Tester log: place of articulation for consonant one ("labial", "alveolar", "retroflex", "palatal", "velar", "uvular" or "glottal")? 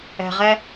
uvular